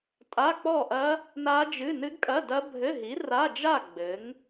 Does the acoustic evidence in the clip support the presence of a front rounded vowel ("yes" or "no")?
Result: no